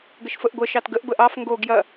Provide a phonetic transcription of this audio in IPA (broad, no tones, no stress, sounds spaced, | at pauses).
ɡ ə ʃ f ə ʔ ɡʷ ə ʃ ɑ t ɡ ə ʔ b ə ʔ ɑ f ŋ ɡ o ɡ j ɐ